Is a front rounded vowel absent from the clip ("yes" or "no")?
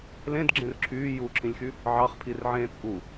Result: no